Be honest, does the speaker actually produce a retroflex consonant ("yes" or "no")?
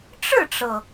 yes